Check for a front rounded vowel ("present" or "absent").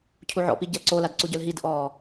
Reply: present